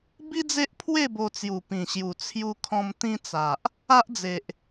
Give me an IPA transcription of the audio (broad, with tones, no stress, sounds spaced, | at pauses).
b i˦ d͡z e˦ ʔ pʰ w e˥˧ b o˧ t͡s j u˨˩ p ĩ˨˩ ɕ j u˨˩ t͡sʰ j u˧ kʰ ɔ̃˧ m t̪ ĩ˧ t͡s a˨ ʔ | a˦ ʔ d͡z e˨ ʔ